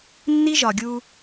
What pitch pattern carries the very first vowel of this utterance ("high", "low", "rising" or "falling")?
high